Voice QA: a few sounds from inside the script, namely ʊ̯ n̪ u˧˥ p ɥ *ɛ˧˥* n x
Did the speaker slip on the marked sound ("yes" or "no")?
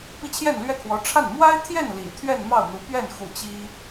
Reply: yes